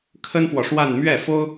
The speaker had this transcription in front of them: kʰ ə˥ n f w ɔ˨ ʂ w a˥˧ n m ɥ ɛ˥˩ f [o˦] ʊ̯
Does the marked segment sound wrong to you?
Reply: yes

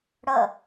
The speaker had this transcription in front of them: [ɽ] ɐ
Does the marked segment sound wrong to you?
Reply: no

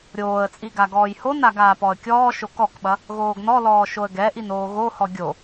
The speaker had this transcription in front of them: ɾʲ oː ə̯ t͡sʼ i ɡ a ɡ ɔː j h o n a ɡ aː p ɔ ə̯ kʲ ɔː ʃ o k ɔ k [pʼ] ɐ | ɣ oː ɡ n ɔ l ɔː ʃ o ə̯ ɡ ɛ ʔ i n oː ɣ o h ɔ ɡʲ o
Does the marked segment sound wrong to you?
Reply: yes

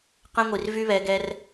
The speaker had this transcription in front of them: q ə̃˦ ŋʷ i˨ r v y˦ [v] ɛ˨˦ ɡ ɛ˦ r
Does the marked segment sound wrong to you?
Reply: yes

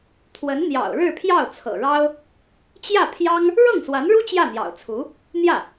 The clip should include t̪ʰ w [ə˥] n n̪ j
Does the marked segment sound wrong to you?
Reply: yes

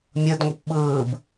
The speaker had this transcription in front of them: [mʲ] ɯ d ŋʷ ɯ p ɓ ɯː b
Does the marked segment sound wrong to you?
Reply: no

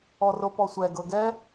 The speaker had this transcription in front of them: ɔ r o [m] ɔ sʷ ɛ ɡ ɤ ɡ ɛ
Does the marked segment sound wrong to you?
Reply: yes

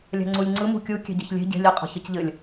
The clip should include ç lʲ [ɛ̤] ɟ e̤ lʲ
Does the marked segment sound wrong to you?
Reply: yes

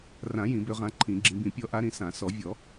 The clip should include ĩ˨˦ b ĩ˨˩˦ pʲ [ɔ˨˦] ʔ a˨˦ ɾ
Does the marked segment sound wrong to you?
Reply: no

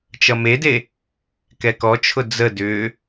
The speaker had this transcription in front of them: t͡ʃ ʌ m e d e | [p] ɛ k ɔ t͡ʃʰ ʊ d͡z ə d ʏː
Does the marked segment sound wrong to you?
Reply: yes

